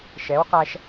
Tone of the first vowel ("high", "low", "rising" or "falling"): rising